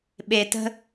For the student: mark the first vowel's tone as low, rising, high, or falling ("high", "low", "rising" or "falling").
low